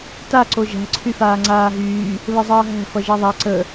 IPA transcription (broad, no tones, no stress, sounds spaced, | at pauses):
t a ǀ o ʒ æ̤ ǀʰ y f aː ŋ͡ǀ aː ɦ yː | β ə zˤ ʌː ɦ æ̤ f ʌ ʒ æ ðˤ a ǀ ə